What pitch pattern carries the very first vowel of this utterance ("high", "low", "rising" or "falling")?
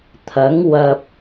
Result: rising